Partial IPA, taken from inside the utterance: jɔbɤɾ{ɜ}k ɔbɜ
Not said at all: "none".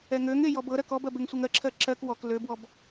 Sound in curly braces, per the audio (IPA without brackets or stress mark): ɜ